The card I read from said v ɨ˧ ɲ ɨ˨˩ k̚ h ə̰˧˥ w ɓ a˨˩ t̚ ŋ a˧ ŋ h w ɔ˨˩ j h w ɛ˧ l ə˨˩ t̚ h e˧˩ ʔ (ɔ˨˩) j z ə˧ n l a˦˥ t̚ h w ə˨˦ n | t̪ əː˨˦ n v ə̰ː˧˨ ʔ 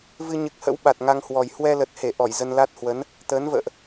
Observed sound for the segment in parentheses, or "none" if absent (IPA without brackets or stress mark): ɔ˧˩